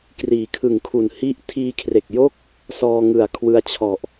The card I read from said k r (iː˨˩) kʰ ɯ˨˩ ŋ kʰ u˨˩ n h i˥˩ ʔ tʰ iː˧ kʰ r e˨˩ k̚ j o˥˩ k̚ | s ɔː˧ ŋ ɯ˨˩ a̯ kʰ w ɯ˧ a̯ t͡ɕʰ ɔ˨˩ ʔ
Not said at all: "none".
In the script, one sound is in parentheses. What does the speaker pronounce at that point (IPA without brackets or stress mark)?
iː˨˩